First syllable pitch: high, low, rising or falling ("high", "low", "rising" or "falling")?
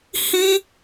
high